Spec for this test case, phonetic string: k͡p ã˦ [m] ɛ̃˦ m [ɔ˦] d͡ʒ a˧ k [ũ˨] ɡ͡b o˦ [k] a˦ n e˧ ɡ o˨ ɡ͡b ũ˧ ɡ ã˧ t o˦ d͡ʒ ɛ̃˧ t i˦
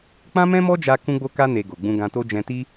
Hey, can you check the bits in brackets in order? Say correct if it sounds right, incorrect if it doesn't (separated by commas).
correct, correct, incorrect, correct